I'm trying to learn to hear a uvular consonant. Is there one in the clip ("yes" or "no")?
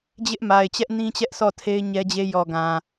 no